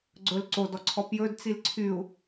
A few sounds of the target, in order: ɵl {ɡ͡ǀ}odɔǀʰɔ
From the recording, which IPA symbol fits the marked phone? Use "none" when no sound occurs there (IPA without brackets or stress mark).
ǀ